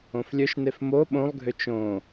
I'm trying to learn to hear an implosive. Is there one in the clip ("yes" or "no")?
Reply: yes